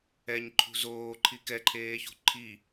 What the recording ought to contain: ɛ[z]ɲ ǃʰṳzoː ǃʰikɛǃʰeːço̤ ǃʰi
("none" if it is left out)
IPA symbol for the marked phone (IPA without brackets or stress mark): none